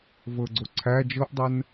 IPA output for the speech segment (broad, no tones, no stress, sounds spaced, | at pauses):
v ɤ ɡ͡ǀ o ǀʰ æ d͡ʒ ɤ ʔ dˤ ɜ n